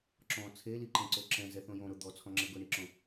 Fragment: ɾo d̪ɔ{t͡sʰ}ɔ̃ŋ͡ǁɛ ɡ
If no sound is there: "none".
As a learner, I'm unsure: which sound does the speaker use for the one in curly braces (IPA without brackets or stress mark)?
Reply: t͡sʰ